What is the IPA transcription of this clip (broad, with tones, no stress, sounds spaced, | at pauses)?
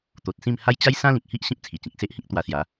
t̪ o˨ t̚ s ĩ˥˧ m h a˦ j t͡ɕ a˦ j s ã˦ l ĩ˨ k̚ h i˦ ʔ ɕ ĩ˦ p̚ t͡sʰ i˨˩ t͡ɕ ĩ˨ k̚ s e˦ ʔ h ĩ˦ k̚ t̪ w a˧ s j a˨˦